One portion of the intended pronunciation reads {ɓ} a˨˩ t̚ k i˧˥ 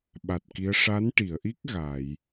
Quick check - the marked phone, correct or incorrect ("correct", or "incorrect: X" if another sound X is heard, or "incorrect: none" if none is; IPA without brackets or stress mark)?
correct